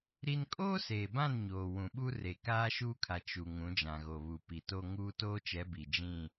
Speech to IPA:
ɾi˦n kʼoː˦seː˨bã˦˨n ɲoː˨ wũ˨ɓu˦ re˨kaː˦ʃuː˦kʰa˨ t͡ʃu˨ ŋũ˨˦d͡ʒã˨ɣo˨βu˨ pi˨ to˦ŋuː˦ toː˦t͡ʃɛ˨˦ bi˨d͡ʒĩ˦˨

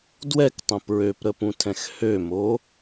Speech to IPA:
dwɛktˤə̃ pɹøpɾəpũtʰɛ̃x hømo

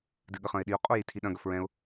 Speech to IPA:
dɨɠəχɐ̃ɪ̯ɗiʊ̯ qʼojitʰiɗɐ̃ ɡɐfɹɛ̃ʊ̯

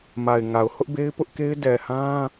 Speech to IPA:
ma˨ɪ̯ŋa˨ʊ̯ hʊ˦ʔbe˦ɪ̯pʊ˦ʔke˦ɪ̯ dɛ˨hã˦

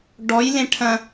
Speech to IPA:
ɖɔjlẽ ʈʰɐ̃

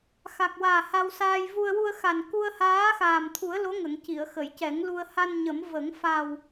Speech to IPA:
xa˨˩k̚waː˨˩ ha˧wsaː˧j vu˧ə̯ wu˧ə̯xa˨˩n ku˧ə̯haː˧˥xaː˨˩mt̪ʰu˨˩˦ə̯ lo˧˥ŋə˨˩˨ŋ ci˨˩˨ə̯xə˨˩˨jcɛ˨˩˦ŋlu˧ə̯ ha˧nɲə˨˩˦mvə˨˩˦ŋ fa˨˩w

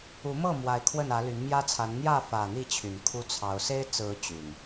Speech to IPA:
u˨˦mɤ˥˨ mwa˨˦ɪ̯kʰwə˥˨nä˨˦ ly˨˦nmjä˦t͡sʰa˨˦n n̪jä˥˨fä˨˩ n̪i˥˨t͡ɕʰy˨˩n kʰu˦t͡sʰɑ˨˦ʊ̯ se˦ɪ̯t͡sɹ̩˨˦ t͡ɕy˨˩n

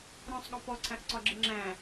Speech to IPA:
ɾɔ̃sˤɠɒ pɔǀʰæ̃ʔǀɒɡ͡ǁe ŋ͡ǁæ̃

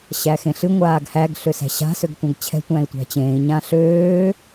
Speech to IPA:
ɕæxẽɬɨ ŋʷaːɡhæɡ ɬøsæ̤ɕa̤ søɡtʷãɡt͡ɕʰɛ̤ tʷæ̃i̯tʷæ̤t͡ɕẽːi̯ ɲãɬøː

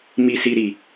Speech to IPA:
mi˨si˨ɾi˨

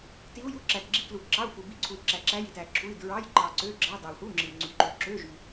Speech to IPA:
ti˧˥u̯ju˧˥˧ǁæ˨t ɡ͡ǁi˧˥klu˨ǁɑ˧˥˧u̯fu˨ bi˧˥˧ǀʰu˨i̯ǁæ˨ǁæ˧˥ ji˨tæ˨ǁʰu˧˥˧i̯ dɹɑ˧˥˧jǃɑ˨ ǀø˧˥˧ɡ͡ǁɑ˧˥˧ dɑ˨u̯hu˧˥˧ ŋ͡ǁɯ˨i̯ŋ͡ǀy˨ǃø˨ ǁø˧˥˧ʒy˨

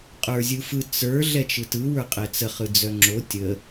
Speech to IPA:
qʼə˞zʲɯfɯ t͡sə˞ ɮɛt͡ʃɯtɯ wə˞qʼɛt͡sə χɯd͡zœŋ͡ǁo tʲə

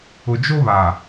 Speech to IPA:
ʊ˨d͡ʒo˦βa˨

